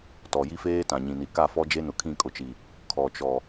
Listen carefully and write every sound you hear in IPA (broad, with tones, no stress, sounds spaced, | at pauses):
t ɔ˨ j i˦ f eː˦ t ã˨ ɲ ĩ˨ n i˨ k a˦˨ f ɔ˦ d͡ʒ e˦ n ʊ˨ kʰ ĩ˦˨ kʼ ʊ˨ t͡ʃ i˨ | kʰ ɔ˨ t͡ʃ ɔ˨